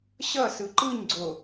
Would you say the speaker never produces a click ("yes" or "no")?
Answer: no